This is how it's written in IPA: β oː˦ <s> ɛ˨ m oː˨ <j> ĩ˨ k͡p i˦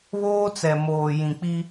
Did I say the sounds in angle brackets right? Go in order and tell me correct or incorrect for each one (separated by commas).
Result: incorrect, correct